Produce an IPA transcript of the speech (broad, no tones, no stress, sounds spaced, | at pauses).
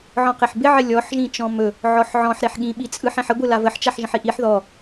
ʕ ɔ̃ q e ħ b ɪ ʕ ɪ lʲ ɔ ħ ʒ ĩ t͡ʃ ɔ̃ m ɵ | ʕ ɔ ħ ʕ ɔ̃ ħ ɾ e ħ ɠ ĩ ɓ i t͡sʼ ɯ ħ ẽ ħ ə ɡʷ ɯ l a v ə ħ t͡ʃ a ħ ʒ ə̃ ħ i ʔ i ħ ð ɔ